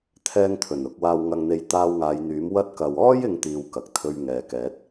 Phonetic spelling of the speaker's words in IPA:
t̪ʰ ɛː˧ ŋ t̪ʰ ɵ˨˩ n ʊ˧ k̚ w aː˧ w ŋ ɐ˧ ŋ n̪ e˧ j t̪ aː˧ w ŋ aː˨˧ j n̪ yː˨˥ m w ɐ˧ t̚ k ɐ˨ w ɔː˥ j ɪ˥ ŋ t̪ iː˧ w k ɐ˨ k̚ t̪ʰ ɵ˧ ɥ ŋ ɛː˨ k ɛː˨˥ t̚

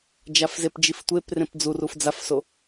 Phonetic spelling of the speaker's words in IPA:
d͡ʒ a f z e p d͡ʒ i f tʷ e p r ẽ p d͡z u r u f d͡z a f s o

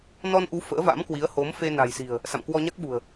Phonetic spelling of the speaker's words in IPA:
n ɔ˧ n ʔ u˨˦ f ə̰ː˧˥ v a̰˧˥ m k w i˨˦ ə̯ h o˨˦ m f e˧ n a̤˨˩ j s i̤˨˩ ə̯ | s a̰˧˨ m k w ɔ˧ ɲ a˦˥ k̚ ɓ ṳ˨˩ ə̯

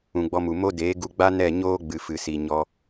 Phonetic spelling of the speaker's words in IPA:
ũ˨ ɡ͡b ɔ˧ m u˨ m o˦ d eː˨˦ ɡ u˧ ɡ͡b a˦ n ɛ˦˨ ɲ oː˦ ɡ͡b ɨ˨ f ɨ˨ s i˨ ɲ ɔ˧

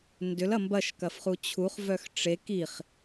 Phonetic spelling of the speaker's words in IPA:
n d ʏ l ɐ m b ɐ ʃ k ɐ f χ u t͡ɕʰ u χ v œ x ʈ͡ʂ e k i χ

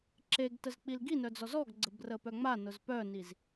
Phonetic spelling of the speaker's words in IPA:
ǁ e ɡ t ə z k͡p i l ɡ i n œ d͡z ɔ z ɔ ɡ ɡ͡ǀ ə b r ə p œ ŋ͡m a n ʊ z p œ n i z

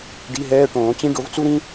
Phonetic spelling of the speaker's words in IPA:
ɖ i˧˥˧ ɦ ɛː˧˥˧ ʈ õː˨˩˦ t͡ɕ ĩ˥ ɖ o˨˥ v t͡s u˥ ɾ ĩ˥

